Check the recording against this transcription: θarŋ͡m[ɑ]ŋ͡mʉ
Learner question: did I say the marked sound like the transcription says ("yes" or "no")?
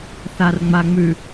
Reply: no